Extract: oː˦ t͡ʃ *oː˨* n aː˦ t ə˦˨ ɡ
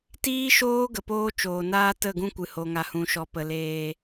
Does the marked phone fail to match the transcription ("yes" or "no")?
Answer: no